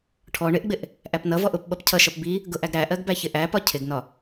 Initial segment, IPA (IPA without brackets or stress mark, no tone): ʈʰ